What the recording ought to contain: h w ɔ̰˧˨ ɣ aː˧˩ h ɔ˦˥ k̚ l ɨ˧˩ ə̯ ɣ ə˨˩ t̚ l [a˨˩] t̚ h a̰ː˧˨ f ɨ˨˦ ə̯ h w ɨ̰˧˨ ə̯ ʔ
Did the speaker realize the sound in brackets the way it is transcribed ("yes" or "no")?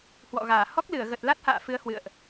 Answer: no